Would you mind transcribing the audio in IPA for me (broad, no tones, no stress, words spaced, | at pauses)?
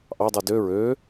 ʔɑdˤu dø ɹø